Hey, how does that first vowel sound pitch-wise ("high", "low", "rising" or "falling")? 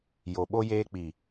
low